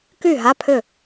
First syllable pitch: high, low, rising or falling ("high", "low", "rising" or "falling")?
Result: falling